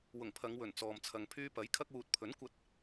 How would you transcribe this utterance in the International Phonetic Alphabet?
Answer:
wʊ˨˩ŋpʰɐ˨˧ŋwɵ˨˩n t͡sɔː˨mt͡sʰɐ˨ŋ pʰyː˧pɐ˨˥j kʰɐ˧k̚wuː˨t̚pʰɵ˨˥nkʷɐ˧t̚

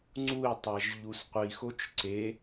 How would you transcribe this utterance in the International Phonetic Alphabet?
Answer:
ŋ͡ǀui̯tˤæʒ ʎusqʷixot͡ʃ ǀe

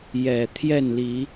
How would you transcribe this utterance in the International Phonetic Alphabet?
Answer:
jɛ˨˩ t̪ʰjɛ˥˨nli˨˦

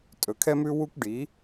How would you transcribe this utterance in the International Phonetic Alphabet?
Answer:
tʼɵ˨kʰɛ˦mʉ˦ wu˦kʷ ɖi˨˦

